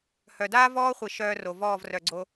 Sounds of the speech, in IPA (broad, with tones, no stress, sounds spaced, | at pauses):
h œ˨ d aː˦ v ɔː˦ χʷ i˨ ʃ œː˧ r o˨ v ɔː˦˨ v r œ˨ ɡ͡ǀ o˧